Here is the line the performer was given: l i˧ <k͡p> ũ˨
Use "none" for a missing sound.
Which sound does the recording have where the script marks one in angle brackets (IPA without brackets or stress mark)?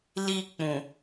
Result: k͡p